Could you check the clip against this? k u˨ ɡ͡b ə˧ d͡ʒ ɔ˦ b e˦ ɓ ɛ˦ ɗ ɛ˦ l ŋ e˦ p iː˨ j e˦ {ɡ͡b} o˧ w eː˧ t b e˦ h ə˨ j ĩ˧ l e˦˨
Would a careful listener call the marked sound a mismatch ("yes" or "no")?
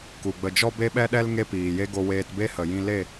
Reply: yes